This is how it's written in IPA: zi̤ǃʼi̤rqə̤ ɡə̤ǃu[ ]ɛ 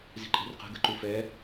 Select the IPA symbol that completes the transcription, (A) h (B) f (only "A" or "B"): B